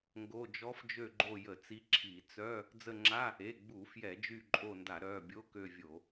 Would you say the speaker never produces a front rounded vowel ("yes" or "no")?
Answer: no